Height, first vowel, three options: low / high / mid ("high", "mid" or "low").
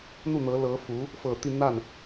high